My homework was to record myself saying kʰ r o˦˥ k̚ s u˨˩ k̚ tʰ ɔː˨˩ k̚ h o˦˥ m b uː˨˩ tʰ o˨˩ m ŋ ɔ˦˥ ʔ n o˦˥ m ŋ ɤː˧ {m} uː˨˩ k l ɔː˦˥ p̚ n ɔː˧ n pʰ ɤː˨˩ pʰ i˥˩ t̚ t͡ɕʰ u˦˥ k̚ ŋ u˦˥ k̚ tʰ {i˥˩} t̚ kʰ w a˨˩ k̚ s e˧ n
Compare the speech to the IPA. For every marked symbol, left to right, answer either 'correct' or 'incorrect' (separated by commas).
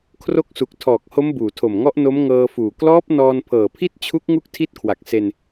incorrect, correct